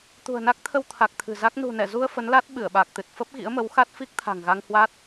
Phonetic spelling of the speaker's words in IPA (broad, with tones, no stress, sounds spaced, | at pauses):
t̪ ṳ˨˩ ə̯ n a˦˥ k̚ t̪ʰ ə˧ w t̪ʰ a˨˩ k̚ t̪ʰ ɨ̤˨˩ z a˦˥ k̚ n ṳ˨˩ n ɛ˧˩ z u˧ ə̯ f ə˨˦ n l a˦˥ t̚ ɓ ɨ˧˩ ə̯ ɓ a˨˩ k̚ t̪ ɨ˨˩ t̚ f ə˦˥ p̚ ɣ ḭ˧˥ ə̯ m ə˨˦ w x a˦˥ t̚ f i˦˥ k̚ t̪ʰ a̤˨˩ ŋ ɣ a˧ ŋ h w a˦˥ t̚